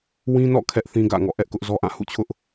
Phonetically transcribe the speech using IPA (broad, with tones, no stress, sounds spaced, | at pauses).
w ĩ˦ n ɔ̰˦˨ kʰ ɛ˦ ʔ θ ĩ˦ ɡ ä̰˦˨ ŋ ɔ̰˦˨ ʔ ɛ˦ ʔ k ʊ˦ ʔ z ɔ˦ ʔ ã˦˨ h ṵ˦˨ t͡ɕʰ ʊ˦ ʔ